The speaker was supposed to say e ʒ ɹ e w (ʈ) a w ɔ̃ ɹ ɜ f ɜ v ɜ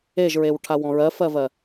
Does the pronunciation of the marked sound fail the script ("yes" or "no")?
yes